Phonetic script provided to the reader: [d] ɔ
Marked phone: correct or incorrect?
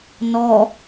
incorrect